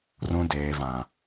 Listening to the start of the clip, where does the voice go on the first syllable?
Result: low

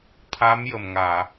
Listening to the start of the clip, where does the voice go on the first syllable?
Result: rising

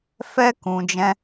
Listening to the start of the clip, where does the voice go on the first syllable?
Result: high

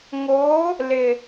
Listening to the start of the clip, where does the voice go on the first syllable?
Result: rising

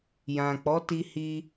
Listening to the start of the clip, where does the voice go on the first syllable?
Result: low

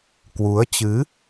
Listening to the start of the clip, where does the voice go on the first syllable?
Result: rising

